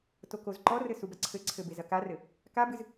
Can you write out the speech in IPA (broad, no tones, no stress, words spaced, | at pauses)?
tokozǃɔrɘ subɐǀʰɘǀʰɘ bezɐkarɘ | kabɨz